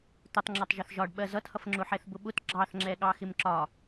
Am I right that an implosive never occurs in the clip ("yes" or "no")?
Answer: no